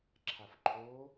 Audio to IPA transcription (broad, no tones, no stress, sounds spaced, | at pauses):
ǁʰ a f ǃʰ o